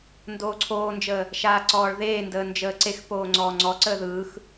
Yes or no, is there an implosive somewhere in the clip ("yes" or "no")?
no